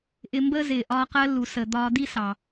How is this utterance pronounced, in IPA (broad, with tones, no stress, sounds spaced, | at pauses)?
ʔ ɪ˧ m b əː˥ z ɪː˩ ʔ ɒː˧ q ɜ˧ lː u˩ s əː˩ d̪ ɒː˧ d̪ i˥ s ɑ˩